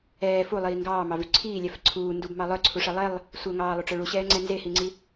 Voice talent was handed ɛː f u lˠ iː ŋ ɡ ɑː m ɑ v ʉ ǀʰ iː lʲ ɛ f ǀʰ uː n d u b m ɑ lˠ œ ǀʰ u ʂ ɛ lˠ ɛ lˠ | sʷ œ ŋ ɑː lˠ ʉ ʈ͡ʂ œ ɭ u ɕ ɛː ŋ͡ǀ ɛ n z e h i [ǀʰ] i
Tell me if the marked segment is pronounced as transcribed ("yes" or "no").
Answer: no